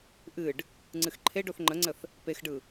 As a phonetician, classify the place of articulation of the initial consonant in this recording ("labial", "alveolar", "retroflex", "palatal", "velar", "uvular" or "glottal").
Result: glottal